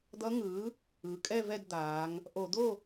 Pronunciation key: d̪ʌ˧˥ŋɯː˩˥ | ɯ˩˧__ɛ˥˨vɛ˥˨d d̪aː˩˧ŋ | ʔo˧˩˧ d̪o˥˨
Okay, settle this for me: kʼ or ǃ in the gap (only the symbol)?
kʼ